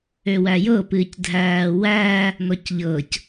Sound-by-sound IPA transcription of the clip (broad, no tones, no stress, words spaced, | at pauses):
øwæjɤ pɨːcdʱæːwæː | nɔcʎɤc